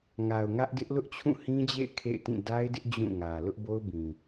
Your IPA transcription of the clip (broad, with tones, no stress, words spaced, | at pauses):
ŋa˨ʊ̯ŋä˦ʔdɪ˦ʔ lʊ˦ʔt͡ɕʰũ˦˨hĩ˦d͡ʑḛ˦˨ɪ̯ kʰḛ˦˨ɪ̯tĩ˦˨ da˦ɪ̯dɪ˦ʔ d͡ʑũ˦˨ŋä˨ lʊ˦ʔbo˦ʊ̯bĩ˨